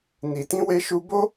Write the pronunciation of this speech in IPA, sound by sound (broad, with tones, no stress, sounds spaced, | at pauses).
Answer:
n i˨ t ĩ˧ w e˧ ʃ u˧ b o˦